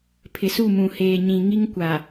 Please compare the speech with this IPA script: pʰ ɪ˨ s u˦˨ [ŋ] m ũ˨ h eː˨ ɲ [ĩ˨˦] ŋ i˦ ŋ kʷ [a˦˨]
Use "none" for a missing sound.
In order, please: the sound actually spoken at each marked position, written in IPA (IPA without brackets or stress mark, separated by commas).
none, ĩ˨, a˨